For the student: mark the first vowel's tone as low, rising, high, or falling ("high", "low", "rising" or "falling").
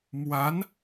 rising